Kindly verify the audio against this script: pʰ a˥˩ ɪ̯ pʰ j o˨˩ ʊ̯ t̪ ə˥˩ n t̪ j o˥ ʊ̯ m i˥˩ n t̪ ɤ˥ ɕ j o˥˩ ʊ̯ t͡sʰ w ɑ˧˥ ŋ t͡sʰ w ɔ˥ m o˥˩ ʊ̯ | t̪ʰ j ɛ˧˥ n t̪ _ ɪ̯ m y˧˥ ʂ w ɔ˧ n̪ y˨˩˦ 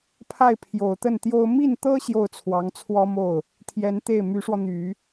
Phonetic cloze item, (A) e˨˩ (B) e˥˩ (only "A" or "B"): B